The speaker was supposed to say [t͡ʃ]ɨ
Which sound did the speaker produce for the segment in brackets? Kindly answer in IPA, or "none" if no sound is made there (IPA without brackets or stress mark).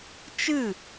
t͡ʃ